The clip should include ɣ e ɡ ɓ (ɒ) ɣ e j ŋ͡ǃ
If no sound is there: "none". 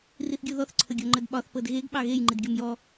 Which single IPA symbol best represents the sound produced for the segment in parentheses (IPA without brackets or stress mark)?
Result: ɑ